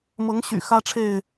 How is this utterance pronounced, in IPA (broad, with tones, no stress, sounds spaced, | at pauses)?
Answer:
m ɤ˨˦ ŋ ɕ y̰˨˩ x ä˦ ʈ͡ʂʰ e˥˨ ɪ̯